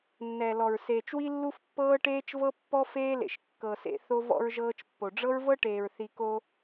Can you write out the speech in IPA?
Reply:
nːɛ˨lɔ˨ɹ seː˨t͡ʃwi˦lːu˦fpːɤː˦ ʈeː˦t͡ʃvɤ˦pːɔ˦ feː˦lḛ˨ʃ kːɤ˨sḛ˦θo˦v ɔ̰˦ɹʒɤː˦t͡ʃpːo˨ ɖ͡ʐɤ˦ɹvɤ˦ʈeː˨ɹ θi˦ ko˦

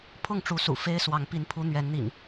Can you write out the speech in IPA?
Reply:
pʰʊ˥˨ŋʈ͡ʂu˨˦sṵ˨˩ fe˦ɪ̯swɑ˨˦ŋ pi˨˦npʰu˨˦n̪ɥɛ˨˦nn̪ḭ˨˩ŋ

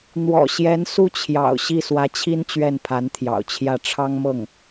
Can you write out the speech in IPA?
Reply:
n̪wɔ̰˨˩ ɕjɛ˧˥n su˥t͡ɕʰjɑ̰˨˩ʊ̯ ɕi˥˩swä˧˥t͡ɕʰi˥n t͡ɕɥɛ˥˩npʰa˧˥nt̪ʰjɑ̰˨˩ʊ̯t͡ɕʰjä˥˩ ʈ͡ʂʰɑ˥ŋmɤ˥˩ŋ

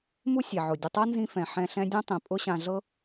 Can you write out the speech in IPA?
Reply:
mu˥sʲɛ˩ʕʊ˩ dʲʊ˨tˤɤ˥nzĩ˦ fɛ̃˩ħɛ̃˨ ɬɛ̃˦dʲɐ̃˥ tˤĩ˩pʼʊ˥ɕã˨ ɮɤ˦

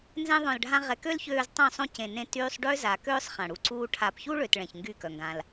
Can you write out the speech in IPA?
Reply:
nzɛ̃˧ðˤœ̃˨lɖʱã˧ ʁɛ˧ kø˦lçøː˧z tˤœ̃˦˨sˤõ˦ cẽ˨nẽ˧ tyː˧sˤɖø˦za˨køː˦sˤ χã˨ɽu˧ǀuː˦ ʈʰa˨pçu˦ɭø˨t ɭɛ̃˨çŋɡy˦˨kœ˨ ŋɡã˧l

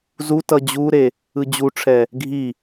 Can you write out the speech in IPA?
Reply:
zutʌ d͡ʑuɾe | ɯd͡ʑuʈ͡ʂʰɛ | ɡʱi

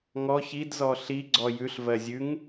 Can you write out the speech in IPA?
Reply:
ŋɔ çidzɔ ɬiɡ͡ǀɔ jʉɬ vɜzʲʉŋ

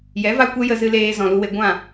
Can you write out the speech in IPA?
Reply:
jɛ˨˦va˧ kʷɛ˦jə˧ zɨ˧leː˧ zɔ̃˨lu˧we˧ ɡʷã˦˨

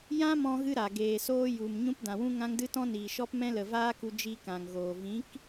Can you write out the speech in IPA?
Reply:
jã˦mɔ̃˧ɣɨ˧ ɾa˨ ɡeː˨ soː˧ju˨m ɲũ˧pdã˨wũ˧ ŋã˧ŋdɨ˧tɔ̃˧ niː˨ʃɔ˧pmɛ̃˧lə˨ vaː˦ku˧ d͡ʒi˧kã˨ŋɣoː˨ vĩ˨˦k

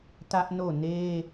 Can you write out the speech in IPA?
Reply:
tä˦ʔno˦˨ne˦

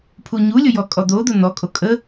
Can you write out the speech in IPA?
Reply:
pʰuɲulʲʊ jɔkʼɔd̪od̪ʊ n̪ɔkʼo kʼə

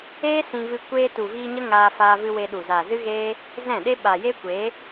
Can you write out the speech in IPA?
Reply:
eː˦sĩ˧vɨ˧ kʷeː˧tu˨viː˧ ɲə˦ŋaː˧ faː˧vɨ˧ we˧ɗu˨zaː˨zɨ˦ ɣeː˦ | zɛ̃˦˨ɗe˦ ɓa˨je˦kʷeː˨˦

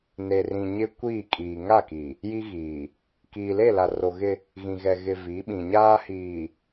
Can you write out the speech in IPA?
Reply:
ne˨rĩ˨ ɲɪ˦kʷiː˦˨ kʼiː˨ŋa˦˨ki˨ | ji˦ɣiː˨ | kiː˨le˦˨la˨ro˨ ɣɪ˦ | ɣĩ˨ɣɛ˨ɣɪ˨ vi˨˦ɓĩ˨ɲaː˦hiː˨

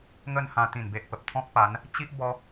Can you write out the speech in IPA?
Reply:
ŋə˥˧nhã˧ t̪ĩ˨˩nbe˨ʔpə˨p̚ t̪ʰɔ̃˦k̚pa˨˦n | t͡ɕi˦ʔ bɔ˦

